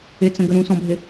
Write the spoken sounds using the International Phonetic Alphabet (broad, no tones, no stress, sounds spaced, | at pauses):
ɪ t͡s ə̃ ɡ ə ɾ ũ s ɔ̃ bʱ ɪ